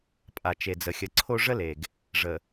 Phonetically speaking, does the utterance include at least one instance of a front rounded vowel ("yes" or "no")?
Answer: no